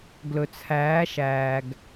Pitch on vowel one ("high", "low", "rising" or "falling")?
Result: low